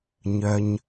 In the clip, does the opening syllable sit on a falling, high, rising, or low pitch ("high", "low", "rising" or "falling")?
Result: low